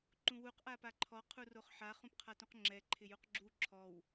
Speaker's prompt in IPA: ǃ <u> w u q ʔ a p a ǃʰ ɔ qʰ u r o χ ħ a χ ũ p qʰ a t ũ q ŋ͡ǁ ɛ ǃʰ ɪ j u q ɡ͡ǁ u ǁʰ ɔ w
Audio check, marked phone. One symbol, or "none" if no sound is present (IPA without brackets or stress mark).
ũ